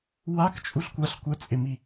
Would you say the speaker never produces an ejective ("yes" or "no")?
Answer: no